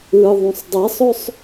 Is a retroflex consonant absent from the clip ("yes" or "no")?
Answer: yes